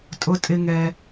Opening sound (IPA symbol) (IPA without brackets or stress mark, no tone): tʼ